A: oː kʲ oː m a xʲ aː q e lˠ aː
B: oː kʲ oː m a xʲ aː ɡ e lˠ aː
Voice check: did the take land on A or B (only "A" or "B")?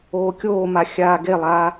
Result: B